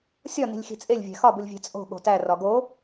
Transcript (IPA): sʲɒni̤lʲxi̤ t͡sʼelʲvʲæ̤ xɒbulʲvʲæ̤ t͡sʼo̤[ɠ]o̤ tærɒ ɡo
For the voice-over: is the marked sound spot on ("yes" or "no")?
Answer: yes